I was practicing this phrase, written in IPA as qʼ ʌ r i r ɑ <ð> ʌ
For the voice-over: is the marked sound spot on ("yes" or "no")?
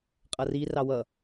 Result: no